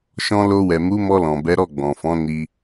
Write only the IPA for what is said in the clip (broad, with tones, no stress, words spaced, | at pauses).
ʃɔ̃˧lo˧wɛ˨ mu˨˦ mɔ˧lɔ̃˨bɛ˨˦ɾɔ˦˨ ɡ͡bɔ̃˨fɔ̃˨˦ ni˧